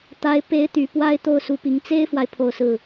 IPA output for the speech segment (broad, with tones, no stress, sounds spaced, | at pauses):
t̪ a˧˥ ɪ̯ p e˧˥ ɪ̯ t̪ y˨˩ p w a˥ ɪ̯ t̪ o˥˩ ʊ̯ s u˧˥ p i˧˥ ŋ t͡s e˥ ɪ̯ f w a˨ ɪ̯ pʰ o˥˧ ʊ̯ s ɹ̩˥˩